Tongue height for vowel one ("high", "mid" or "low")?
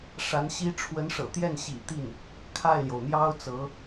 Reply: low